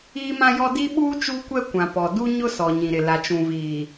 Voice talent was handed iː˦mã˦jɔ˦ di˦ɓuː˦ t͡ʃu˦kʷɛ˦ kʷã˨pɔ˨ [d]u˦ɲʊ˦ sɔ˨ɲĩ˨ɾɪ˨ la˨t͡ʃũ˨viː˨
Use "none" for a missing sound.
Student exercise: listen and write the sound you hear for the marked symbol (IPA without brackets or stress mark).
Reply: d